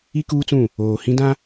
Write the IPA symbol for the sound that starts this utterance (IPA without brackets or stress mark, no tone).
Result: i